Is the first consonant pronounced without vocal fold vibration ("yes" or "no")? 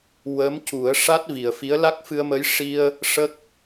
no